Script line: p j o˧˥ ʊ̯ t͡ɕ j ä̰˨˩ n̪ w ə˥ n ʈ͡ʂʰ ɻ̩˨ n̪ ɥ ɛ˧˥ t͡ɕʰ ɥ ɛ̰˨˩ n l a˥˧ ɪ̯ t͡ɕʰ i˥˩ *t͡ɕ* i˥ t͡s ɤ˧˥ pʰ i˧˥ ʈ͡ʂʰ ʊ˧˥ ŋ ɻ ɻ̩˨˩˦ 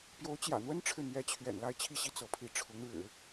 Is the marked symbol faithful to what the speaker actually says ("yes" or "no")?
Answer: no